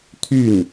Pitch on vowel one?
falling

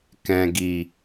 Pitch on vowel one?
low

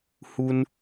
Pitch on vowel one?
high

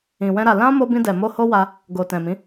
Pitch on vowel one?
low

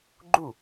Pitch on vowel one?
falling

